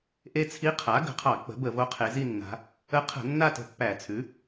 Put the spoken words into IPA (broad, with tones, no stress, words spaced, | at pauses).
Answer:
ʔe˦˨t͡sʰi˧˥ qʰa˩˥ ɡə̤˨˩qʰɑ˧˩˧ k͡pə̤˩˥bə˧˩˧vo˧˥ qʰe˩˧zi˦˨nːa̤˩˧ | ə˧˥qʰə̤˧˩˧ nːa˦˨tə̤˨˩ pːæ˧˩˧t͡sʰʉ˩˥